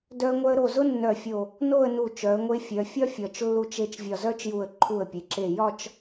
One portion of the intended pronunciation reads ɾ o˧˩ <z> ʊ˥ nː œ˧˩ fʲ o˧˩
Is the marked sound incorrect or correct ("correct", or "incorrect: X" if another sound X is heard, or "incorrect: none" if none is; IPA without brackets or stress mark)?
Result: correct